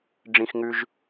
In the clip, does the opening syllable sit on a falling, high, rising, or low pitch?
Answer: low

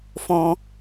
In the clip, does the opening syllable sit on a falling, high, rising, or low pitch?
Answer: low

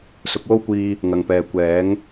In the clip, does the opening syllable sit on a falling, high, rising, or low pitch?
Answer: rising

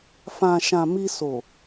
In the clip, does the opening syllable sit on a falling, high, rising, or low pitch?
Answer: low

